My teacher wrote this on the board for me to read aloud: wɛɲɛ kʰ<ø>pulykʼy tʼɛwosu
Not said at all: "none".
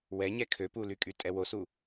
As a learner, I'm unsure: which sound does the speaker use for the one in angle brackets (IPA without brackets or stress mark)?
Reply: ø